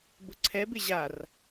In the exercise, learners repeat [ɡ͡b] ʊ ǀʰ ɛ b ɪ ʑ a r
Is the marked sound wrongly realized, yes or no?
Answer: yes